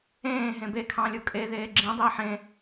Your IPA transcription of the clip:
ẽː ɦẽbe kʰɑ̃lʲukʼe ðeːɡ͡ǁĩ dˤiːħẽ

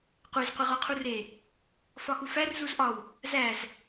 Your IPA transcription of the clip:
qʷez qʷiʁoqʰure | fɒxufær zuzʔɒw | zæz

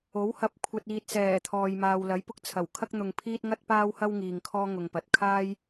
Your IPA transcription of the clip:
o˨˥whɐ˨˥p̚ kʷʰɐ˨t̚iː˨t̚sɛː˨˩ t̪ʰɔː˨jmaː˨wlɐ˨˥j pʊ˧k̚t͡sʰɐ˨˩wkʰɐ˥k̚n̪ʊ˨ŋ pʰiː˥t̚ŋɐ˥t̚paː˥whɐ˥w ŋiː˨ŋ kʰɔː˥ŋʊ˨ŋpɐ˨˥t̚ kʰaː˥j

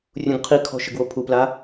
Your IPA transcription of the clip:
rʲũɡqʰikʰɔ̤ ʃɪɡwopʰupla

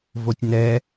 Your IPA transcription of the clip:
votʲnɛ

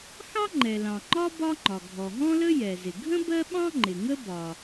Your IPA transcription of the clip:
xɑ˥ ŋ͡ǃɛ˩ lɑ̃˩ŋ͡ǃɒ˥ bɒ˥ŋ͡ǃɒ˩ ɡʱɔ˩ɦɔ̃˥lə˥ jɛ˩zɪ˩ ɡʱə̃˥ bɜ˥ɓɑ̃˥ŋ͡ǃɪ˩ ŋə˥ bɒ˩

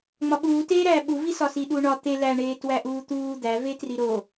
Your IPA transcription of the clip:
ŋ͡mɒɓuːteːɾæː ɓuvisɒsi ɗuːɳɒ t̪e læɳeː twæʔuːt̪uː d̪ævetri ɾo

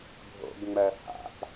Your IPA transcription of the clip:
bʱo̰ɡŋ͡mɜ ha̰p

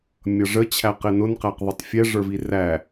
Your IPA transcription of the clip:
mʲʌʐə t͡ɕʰæqɪnʊn qæqðˤʊtˤfʲɛ ʐə˞viræ

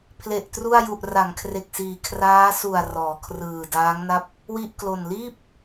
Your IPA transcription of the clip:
pʰle˨˩ʔtru˥˩a̯ ju˨˩ʔra˩˦ŋkʰre˨˩k̚siː˨˩ kʰraː˦˥su˨˩a̯ rɔː˩˦kʰrɯː˨˩ daː˦˥ŋna˥˩p̚ | wi˥˩ʔklo˨˩n liː˥˩p̚

